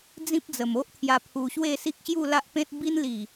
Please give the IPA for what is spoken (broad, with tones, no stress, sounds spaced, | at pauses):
d͡z ĩ˦ p̚ d͡z ə˨˩ m o˦ ʔ t̪ʰ j a˧ pʰ u˧ ɕ w e˥˧ s i˦ k̚ ɕ j u˥˧ l a˦ ʔ p ẽ˦ t̚ b i˦ n l i˨˩